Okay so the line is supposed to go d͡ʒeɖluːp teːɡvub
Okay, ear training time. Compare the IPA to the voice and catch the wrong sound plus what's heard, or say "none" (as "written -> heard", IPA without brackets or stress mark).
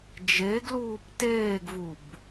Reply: ɖ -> ɡ